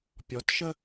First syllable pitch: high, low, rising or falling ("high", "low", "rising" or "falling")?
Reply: rising